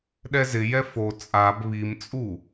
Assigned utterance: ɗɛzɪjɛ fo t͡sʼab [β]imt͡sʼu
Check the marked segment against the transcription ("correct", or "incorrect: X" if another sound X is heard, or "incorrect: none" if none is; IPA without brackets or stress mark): correct